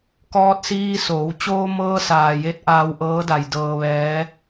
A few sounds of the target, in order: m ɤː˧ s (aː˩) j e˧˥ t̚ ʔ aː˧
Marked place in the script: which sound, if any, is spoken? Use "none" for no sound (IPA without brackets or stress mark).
aː˩